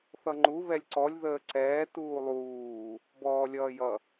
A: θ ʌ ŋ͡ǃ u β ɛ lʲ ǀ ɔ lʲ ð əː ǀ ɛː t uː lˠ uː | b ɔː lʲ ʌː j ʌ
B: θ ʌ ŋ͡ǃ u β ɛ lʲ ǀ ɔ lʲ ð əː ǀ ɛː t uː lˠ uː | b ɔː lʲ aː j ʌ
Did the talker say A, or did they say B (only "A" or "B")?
A